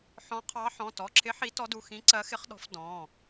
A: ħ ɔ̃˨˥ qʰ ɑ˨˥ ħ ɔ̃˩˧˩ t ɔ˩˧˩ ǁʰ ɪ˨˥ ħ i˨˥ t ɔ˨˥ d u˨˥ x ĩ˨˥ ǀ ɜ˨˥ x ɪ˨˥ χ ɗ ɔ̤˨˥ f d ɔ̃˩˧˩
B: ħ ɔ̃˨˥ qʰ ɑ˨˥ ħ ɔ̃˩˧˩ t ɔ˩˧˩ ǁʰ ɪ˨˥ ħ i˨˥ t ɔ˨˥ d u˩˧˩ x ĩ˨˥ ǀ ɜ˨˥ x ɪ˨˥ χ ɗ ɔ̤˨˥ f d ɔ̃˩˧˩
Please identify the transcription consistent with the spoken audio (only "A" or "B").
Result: B